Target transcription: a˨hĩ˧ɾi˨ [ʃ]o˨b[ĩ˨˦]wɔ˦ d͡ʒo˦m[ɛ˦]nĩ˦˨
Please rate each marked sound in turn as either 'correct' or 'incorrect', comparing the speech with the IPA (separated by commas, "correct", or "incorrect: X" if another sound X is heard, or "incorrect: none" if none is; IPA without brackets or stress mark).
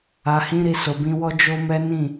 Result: incorrect: s, incorrect: ĩ˧, correct